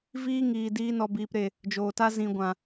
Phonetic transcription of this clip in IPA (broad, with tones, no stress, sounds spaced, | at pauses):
v iː˦ ŋ iː˨ d iː˧ n ɔ˨ b iː˨ p ɾ e˨ | d͡ʒ oː˨ t a˦ z ĩ˨ ɡʷ ã˨